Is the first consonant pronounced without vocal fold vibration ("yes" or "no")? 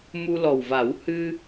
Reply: no